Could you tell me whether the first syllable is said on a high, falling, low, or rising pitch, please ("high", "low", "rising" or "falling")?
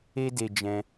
high